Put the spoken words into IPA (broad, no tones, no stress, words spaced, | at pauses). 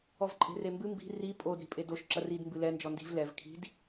ɔvǃʼe̤rembɨ mbi̤ ri pʼod ɾi̤pʼedoʃ ǁɐrid mbɨlɛ nd͡ʒɔndi̤v lɛv kʰi̤d